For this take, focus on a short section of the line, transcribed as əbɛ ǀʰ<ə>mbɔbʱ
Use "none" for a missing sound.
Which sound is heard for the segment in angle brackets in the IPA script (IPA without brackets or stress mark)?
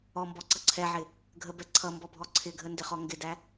ʌ